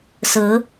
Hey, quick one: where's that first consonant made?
tongue tip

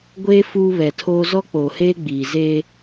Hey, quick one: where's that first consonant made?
velum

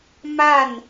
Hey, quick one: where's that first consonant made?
lips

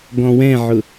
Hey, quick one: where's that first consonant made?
velum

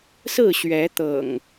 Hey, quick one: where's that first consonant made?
tongue tip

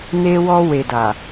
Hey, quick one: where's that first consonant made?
tongue tip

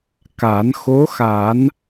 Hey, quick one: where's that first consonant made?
velum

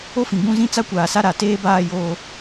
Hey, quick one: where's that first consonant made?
lips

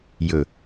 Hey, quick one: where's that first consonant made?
palate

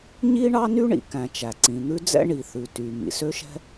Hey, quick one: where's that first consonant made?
palate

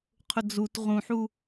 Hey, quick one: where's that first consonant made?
uvula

